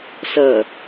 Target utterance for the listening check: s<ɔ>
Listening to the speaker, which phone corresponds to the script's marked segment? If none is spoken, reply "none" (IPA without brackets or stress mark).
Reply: ʌ